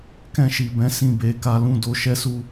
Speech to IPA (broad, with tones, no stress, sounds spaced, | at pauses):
k ɛ̃˧ ʃ i˨ b ɛ̃˨˦ s ĩ˦˨ b e˨˦ k a˦ l ũ˦˨ d o˧ ʃ ɛ˦ s u˦